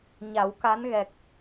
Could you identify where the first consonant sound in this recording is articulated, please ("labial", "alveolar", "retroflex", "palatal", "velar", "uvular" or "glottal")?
palatal